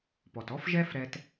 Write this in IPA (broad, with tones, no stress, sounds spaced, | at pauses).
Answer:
p ɔ˩ t ɔ˥ f ʒ ɛ˥ f ɾ ɛ˧ t